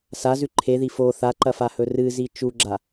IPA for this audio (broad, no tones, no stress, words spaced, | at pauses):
sazʉ ǃʰeði fo θaǃɐfahɵ rɨzi t͡ʃuɡ͡ǁa